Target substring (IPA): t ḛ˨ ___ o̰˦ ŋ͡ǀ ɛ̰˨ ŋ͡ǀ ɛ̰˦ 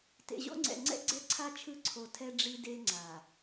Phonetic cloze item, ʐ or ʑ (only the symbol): ʑ